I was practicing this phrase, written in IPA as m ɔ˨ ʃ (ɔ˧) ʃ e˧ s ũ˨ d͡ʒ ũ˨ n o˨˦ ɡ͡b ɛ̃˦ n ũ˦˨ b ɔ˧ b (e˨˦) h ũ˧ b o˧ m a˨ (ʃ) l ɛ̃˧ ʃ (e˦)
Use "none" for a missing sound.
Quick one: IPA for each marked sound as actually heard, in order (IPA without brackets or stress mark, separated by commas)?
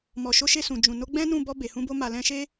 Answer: o˧, e˨, none, e˦